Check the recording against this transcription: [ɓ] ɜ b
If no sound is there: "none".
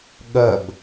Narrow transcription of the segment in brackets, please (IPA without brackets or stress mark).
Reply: ɠ